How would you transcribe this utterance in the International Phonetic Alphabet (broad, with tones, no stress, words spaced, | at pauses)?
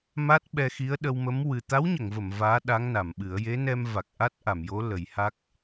ma˦˥t̚ɓɛ˧ xi˧˥ə̯ɗə˧wmə˧˥m wɨ˨˩ t̪a˧˥wɲə˨˩˨ŋvə˨˩˨m vaː˧˥ ɗa˧˥ŋna˨˩˨mɓɨ˨˩˦ə̯ je˧˥nɛ˧m va˨˩k̚ʔa˦˥t̚ʔa˨˩˨mjo˧˥ lə˨˩˦jha˦˥k̚